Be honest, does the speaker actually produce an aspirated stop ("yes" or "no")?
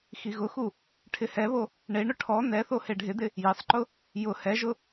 yes